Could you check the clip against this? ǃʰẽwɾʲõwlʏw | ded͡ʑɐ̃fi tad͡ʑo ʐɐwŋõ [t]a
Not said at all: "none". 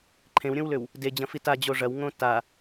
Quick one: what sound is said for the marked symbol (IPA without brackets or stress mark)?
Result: t